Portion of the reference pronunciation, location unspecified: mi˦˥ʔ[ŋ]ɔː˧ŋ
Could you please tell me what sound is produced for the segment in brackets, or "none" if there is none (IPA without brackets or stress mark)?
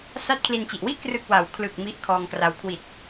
kʰ